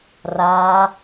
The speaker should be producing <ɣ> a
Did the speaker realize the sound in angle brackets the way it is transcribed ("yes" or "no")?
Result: no